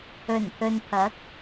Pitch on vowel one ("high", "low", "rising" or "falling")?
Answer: low